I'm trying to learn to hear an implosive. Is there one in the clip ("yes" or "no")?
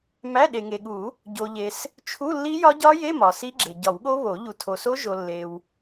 yes